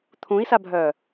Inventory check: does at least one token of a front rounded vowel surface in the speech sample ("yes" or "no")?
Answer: yes